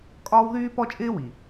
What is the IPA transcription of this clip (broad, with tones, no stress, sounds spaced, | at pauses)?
kʼ ɒː˦ w ð yː˦ p ɔ˦ t͡ʃʼ ɪː˦ w i˨